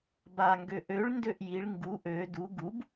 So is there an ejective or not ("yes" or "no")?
no